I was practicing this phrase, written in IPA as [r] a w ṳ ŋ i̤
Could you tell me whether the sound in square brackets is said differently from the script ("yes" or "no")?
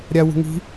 yes